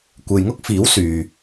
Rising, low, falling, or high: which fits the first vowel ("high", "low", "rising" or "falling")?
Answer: low